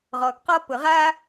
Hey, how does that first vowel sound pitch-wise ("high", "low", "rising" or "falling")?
low